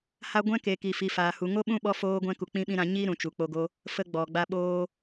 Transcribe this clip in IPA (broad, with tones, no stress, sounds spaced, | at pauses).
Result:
h a˦ ɡʷ ɛ̃˦ k e˨ k i˨ f i˨ f aː˨ h u˨ ŋ o˦ ɓ ũ˦ ɓ ɔ˧ f oː˧ ɡʷ ɛ̃˧ k u˨ k͡p ĩ˦ ɓ ĩ˦ ɾ ã˧ ɲ i˦ ɾ ũ˨ t͡ʃ u˨ k͡p o˧ ɡ o˦ | f ə˦ ɡ͡b ɔ˨ ɡ͡b a˦ ɓ oː˦